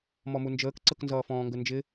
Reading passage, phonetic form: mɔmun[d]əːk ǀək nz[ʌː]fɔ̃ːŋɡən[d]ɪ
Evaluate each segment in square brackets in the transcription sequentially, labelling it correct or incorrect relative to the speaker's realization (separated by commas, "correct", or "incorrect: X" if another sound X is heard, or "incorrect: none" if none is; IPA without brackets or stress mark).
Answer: incorrect: d͡ʒ, correct, incorrect: d͡ʒ